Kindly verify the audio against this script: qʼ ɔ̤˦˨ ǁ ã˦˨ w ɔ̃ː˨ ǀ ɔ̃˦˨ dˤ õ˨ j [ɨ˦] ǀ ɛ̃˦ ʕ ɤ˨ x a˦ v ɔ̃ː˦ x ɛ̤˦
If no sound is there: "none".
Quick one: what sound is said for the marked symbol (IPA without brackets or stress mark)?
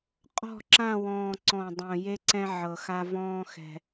e˦